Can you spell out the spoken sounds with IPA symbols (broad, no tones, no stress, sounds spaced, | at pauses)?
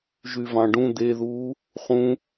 ʒ y v ɑ̃ ɖ ũ d̪ e ð uː | χ ũ